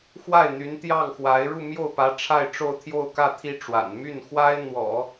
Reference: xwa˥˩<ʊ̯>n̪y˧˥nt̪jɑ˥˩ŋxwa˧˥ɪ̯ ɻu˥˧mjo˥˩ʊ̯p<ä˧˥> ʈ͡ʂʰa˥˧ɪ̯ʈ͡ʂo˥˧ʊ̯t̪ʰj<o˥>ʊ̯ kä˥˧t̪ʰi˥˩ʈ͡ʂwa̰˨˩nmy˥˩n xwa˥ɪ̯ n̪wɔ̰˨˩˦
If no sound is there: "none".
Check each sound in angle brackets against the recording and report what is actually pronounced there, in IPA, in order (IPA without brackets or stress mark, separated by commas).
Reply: ɪ̯, ä˧˥, o˥˧